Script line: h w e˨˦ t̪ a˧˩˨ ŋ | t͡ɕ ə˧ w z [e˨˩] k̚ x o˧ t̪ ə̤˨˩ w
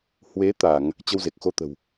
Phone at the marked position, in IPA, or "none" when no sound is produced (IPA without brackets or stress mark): e˨˩